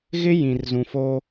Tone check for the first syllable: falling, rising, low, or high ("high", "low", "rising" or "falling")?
high